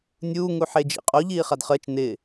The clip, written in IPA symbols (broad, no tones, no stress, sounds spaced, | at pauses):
nʲ uː ŋ u ħ e d͡ʒ ḭ qʼ o ʎ iː χ a d χ əː t͡ʃ n ɪ